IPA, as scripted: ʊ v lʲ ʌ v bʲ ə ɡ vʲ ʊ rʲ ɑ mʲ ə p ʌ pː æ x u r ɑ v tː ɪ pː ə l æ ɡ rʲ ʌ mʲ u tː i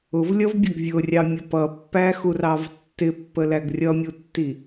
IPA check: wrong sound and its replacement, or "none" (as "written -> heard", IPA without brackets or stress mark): none